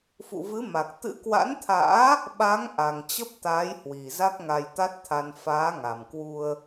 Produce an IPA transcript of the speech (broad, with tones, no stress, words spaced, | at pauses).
fṵ˧˨vɨ˨˦ ma˨˩k̚t̪ɨ̰˧˥kwa̰˧˥nt̪ʰa̰ː˧˥ | ɓa˨˦ŋ ʔa˨˩ŋt͡ɕə˦˥p̚t̪aː˨˦jhwi˨˩ za˦˥k̚ŋa˧jt̪a˦˥t̚ t̪ʰa˧n faː˨˦ŋa˨˩mkwu˧ə̯